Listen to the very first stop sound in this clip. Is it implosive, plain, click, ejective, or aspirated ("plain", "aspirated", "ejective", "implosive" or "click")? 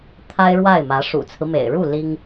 aspirated